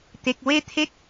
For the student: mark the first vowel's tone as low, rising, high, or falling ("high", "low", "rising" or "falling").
low